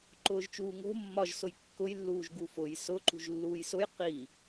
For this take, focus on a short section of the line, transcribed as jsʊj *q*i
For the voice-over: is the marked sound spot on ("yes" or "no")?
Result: yes